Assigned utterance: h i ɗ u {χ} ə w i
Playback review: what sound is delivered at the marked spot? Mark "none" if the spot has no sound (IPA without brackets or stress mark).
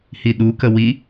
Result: k